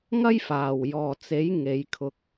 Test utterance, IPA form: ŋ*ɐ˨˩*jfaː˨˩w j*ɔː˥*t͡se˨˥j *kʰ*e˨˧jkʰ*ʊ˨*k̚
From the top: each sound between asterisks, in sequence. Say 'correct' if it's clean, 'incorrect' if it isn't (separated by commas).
incorrect, incorrect, incorrect, incorrect